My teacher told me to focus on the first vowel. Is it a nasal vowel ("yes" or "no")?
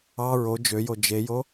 no